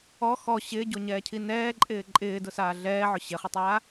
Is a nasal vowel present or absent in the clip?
absent